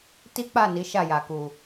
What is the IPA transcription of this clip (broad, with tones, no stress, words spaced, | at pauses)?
ti˦k͡pa˦˨ ni˨˦ʃa˦˨ja˨ ku˨